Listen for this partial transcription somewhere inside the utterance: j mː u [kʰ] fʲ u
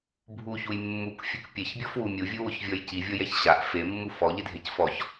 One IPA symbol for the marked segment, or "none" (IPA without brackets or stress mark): k